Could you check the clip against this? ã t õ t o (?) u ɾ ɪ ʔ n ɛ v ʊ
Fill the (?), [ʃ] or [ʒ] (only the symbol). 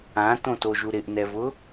ʒ